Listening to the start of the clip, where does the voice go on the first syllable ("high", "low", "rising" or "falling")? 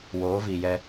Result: rising